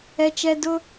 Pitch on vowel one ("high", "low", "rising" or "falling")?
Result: low